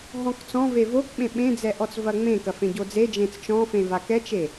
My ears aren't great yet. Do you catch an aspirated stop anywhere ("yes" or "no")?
no